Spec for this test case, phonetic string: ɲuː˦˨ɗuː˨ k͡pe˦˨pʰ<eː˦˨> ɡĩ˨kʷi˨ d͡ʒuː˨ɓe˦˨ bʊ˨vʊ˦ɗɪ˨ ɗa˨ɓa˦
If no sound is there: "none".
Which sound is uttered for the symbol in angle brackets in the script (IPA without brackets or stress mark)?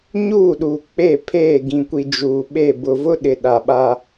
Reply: eː˦˨